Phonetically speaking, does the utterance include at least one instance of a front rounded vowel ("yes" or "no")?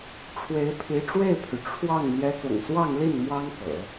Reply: yes